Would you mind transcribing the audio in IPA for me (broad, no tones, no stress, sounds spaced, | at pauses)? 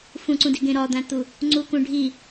f ũ ǀ ũ d i ɡ ẽ ɾ ɒ d̪ æ̃ t̪ u | ŋ͡ǀ u k ũ ɖʱ i